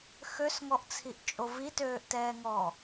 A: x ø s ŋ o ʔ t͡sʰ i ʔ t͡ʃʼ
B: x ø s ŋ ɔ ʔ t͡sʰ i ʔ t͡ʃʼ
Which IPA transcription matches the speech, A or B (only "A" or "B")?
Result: B